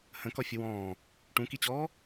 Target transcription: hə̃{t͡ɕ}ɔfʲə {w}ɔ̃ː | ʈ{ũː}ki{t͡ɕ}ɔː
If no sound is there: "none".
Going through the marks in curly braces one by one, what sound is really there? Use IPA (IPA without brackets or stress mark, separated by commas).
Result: k, w, ũ, t͡ɕ